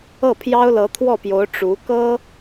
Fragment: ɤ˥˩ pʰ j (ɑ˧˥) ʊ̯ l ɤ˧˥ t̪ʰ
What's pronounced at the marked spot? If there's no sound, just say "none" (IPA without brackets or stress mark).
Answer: ɑ˥